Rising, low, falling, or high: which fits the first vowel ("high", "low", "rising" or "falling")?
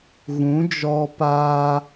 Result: rising